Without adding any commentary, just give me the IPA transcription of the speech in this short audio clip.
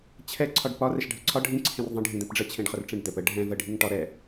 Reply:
t͡ɕʰ ɛ ǀʰ ɒ ɖ p ɒ r ɛ ʃ ɖʱ ə ǀʰ ɒ ɖʱ ĩ ǀʰ ẽ r ðˤ ə̃ ɖʱ ĩ d̪ ɛ̃ p ɖ͡ʐ ə t͡ɕʰ ẽ ɖ χ ə r ʈ͡ʂ ẽ ɖ d̪ ɛ p ə ɖʱ ɛ̃ v ə ɖʱ i ŋ ʈ ɒ ɾ ɛ

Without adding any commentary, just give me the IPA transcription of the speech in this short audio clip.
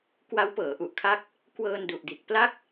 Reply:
k w a˦˥ w p ɤː˩˦ ʔ u˨˩ ʔ kʰ a˦˥ k̚ | k w ɤː˧ n d u˨˩ ʔ d i˨˩ t̚ p l a˥˩ k̚

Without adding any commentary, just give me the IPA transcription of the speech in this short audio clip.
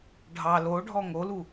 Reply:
ɖʱ ɑ l o ɖʱ ɔ ŋ o l u

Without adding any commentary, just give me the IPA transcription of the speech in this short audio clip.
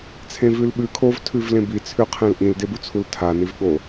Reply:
t͡sʰ ẽ v ʉ l ɓ ʉ kʰ o v tʰ ʉ v l ẽ b i t͡sʰ ʉ qʰ ẽ l ʔ ĩ l d e b u t͡sʰ u l tʰ a n i v ɠ o

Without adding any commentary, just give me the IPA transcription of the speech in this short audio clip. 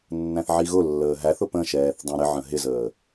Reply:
nː æ̃ θ ʕ i ɣ ʊ lː əː ɦ æ θ ʊ p ə̃ ʃ ɛː θ dˤ æ̃ ɾ ɪ ʕ ə̃ ɦ ɪ z əː

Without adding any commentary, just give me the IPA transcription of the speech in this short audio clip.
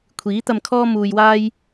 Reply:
kʷʰ iː˨˥ t̪ ɐ˧ m kʰ ɔː˥ m uː˧ j w aː˥ j

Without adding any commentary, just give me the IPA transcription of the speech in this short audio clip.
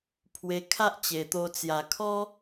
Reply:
pʰ w e˧ kʰ a˦ ʔ t͡ɕ e˨˩ t̪ o˧ t͡s j a˨˩ kʰ ɔ˦

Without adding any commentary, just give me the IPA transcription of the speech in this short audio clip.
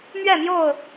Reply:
m ɥ ɛ˥˨ m j o˥˨ ʊ̯

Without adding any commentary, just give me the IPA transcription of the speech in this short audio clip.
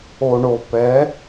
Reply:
o˨ ɳ o˨ p ɛ˨˥

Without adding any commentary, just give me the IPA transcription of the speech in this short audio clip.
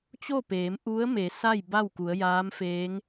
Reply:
t͡ɕ o˥˨ p eː˩˧ m ʔ u˧˥ ə̯ m e˩˧ s a˥˨ j b a˥˨ w k u˩˧ ə̯ j aː˧˥ m f eː˧˥ ŋ

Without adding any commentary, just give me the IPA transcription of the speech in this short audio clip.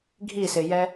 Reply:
ɡʱ i s ɪ j ɛ

